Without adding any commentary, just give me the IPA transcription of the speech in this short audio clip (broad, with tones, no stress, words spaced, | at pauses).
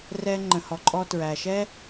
rɛ˧ ŋ͡ǃə̃˩hɔ˩ǃʼɔ˧ tɹæ˩ʃɛ˥